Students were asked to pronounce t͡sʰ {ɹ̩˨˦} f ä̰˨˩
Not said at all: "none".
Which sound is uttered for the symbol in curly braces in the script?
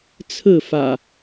ɹ̩˥˨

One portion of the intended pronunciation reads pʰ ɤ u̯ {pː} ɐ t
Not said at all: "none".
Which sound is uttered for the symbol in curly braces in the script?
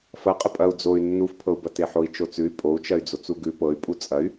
b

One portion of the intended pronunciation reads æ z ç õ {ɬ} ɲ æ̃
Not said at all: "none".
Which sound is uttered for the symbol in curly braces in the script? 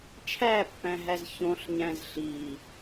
ɬ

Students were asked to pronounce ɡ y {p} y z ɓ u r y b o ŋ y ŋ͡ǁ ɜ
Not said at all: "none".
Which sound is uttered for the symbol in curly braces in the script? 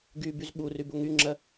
b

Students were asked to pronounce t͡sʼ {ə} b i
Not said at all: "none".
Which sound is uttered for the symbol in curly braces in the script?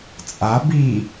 a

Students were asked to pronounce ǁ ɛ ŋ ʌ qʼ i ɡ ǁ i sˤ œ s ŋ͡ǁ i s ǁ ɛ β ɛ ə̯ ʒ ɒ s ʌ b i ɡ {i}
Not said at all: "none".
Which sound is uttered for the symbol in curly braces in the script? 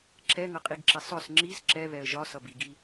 i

